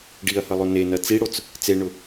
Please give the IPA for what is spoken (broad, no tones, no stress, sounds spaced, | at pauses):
ɖ i ɐ̯ h ʌ lˠ o n e n ɐ t͡s i ɽ o t͡s | t͡s e ɳ ʊ